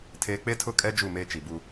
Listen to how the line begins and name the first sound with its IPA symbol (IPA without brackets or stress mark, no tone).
tʰ